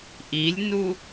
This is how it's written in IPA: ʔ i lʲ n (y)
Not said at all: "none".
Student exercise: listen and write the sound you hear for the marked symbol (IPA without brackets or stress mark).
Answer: u